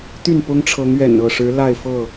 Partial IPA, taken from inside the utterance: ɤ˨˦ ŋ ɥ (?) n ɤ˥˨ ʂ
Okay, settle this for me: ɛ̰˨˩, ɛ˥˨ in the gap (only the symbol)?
ɛ̰˨˩